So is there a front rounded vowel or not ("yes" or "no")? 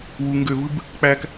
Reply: yes